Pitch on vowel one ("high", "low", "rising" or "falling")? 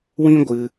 high